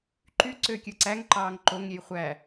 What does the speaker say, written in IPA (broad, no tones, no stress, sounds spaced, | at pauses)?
ǃ y ǀ ø kʲ ɯ ǀ æ ŋ ǃ ɑː ŋ ǃ o ŋ ɾʲ e j χʷ æ